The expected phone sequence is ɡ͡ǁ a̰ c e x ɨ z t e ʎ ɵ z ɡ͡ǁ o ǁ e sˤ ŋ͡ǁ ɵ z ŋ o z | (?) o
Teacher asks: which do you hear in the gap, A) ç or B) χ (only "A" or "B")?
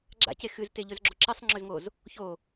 A